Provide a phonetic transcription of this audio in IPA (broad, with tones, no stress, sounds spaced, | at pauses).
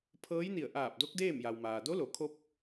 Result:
pʰ ɤː˧˥ j n i˧˩ ə̯ ʔ aː˧˩ p̚ d o˧˥ k̚ d eː˥˨ m j a˩ w m aː˩ d o˧˥ l o˩˧ kʰ o˧˥ p̚